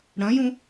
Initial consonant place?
retroflex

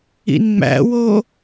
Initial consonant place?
alveolar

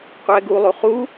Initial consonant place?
uvular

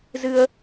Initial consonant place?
alveolar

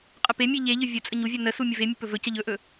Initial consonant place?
uvular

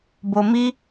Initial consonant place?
labial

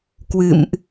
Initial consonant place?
velar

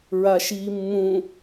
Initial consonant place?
alveolar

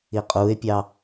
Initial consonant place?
uvular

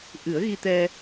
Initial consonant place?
glottal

